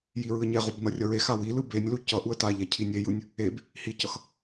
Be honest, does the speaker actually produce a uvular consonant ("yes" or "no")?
yes